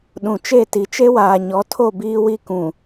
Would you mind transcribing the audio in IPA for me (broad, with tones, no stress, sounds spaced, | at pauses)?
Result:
ɗ ũ˨ t͡ʃ e˦˨ t i˨ t͡ʃ e˦ w aː˨ ɲ ɔ˨˦ tʰ o˦˨ b iː˦ w i˦ k ũ˨